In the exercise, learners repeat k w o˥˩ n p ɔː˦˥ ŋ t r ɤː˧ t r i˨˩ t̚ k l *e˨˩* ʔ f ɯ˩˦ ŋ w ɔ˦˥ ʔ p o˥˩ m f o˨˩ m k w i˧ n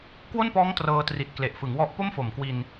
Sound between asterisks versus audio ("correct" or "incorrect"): correct